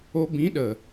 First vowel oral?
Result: yes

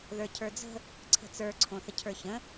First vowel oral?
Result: yes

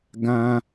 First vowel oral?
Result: no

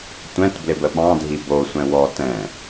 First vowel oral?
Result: no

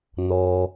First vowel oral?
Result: yes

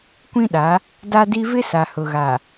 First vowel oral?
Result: no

